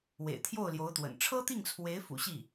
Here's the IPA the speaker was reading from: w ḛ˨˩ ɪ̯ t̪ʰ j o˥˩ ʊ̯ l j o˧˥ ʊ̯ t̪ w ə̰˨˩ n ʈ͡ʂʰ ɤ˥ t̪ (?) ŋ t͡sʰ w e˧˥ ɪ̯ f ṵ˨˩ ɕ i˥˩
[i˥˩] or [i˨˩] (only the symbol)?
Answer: i˥˩